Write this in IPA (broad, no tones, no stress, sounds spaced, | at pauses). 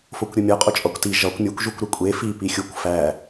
f o kʷ ɾʲ u mʲ ɒ qʼ o t͡ʃʼ ɒ kʷ t i ʒ ɒ kʷ mʲ o kʷ ʒ u kʷ ɾ e kʷʼ e f i p i xʲ u kʷ f æ